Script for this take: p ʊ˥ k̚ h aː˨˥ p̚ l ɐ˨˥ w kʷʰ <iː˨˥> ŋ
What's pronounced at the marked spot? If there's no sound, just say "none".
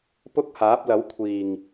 iː˨˩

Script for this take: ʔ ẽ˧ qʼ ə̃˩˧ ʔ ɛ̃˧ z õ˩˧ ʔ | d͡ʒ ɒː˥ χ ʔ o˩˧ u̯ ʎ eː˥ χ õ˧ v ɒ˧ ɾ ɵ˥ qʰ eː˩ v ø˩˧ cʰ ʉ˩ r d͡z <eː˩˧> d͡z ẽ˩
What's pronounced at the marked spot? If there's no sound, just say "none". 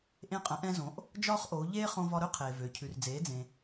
eː˩˧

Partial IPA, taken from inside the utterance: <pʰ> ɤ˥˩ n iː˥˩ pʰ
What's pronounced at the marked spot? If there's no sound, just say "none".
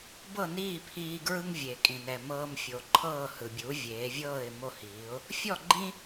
b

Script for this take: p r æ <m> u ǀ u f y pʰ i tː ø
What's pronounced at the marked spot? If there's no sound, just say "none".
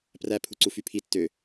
pʰ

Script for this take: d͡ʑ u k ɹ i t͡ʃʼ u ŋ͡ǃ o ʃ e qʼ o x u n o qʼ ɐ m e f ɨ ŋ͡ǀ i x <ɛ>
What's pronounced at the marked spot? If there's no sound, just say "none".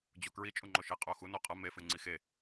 e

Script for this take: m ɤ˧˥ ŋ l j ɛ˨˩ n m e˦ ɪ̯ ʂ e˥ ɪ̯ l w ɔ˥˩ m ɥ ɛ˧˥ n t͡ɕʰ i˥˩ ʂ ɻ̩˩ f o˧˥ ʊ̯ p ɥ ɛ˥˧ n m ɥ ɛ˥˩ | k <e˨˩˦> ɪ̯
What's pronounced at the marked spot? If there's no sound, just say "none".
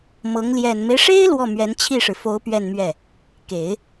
e˨˩˦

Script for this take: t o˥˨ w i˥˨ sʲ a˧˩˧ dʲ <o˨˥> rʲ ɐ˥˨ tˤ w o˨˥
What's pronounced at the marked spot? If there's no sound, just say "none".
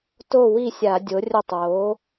o˨˥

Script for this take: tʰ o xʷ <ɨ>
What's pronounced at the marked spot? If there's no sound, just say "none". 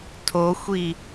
i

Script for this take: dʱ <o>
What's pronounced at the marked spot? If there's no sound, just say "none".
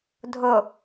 o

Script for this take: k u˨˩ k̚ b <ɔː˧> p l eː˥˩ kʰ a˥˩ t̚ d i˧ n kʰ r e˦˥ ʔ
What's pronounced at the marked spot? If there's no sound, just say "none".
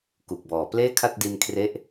ɔː˨˩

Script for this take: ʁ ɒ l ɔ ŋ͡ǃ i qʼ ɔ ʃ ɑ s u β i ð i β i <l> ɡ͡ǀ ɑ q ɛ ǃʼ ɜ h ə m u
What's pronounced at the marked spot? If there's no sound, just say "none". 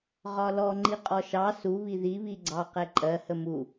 none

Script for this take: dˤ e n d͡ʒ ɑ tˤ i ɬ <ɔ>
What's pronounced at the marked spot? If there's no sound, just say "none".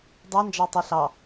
ɑ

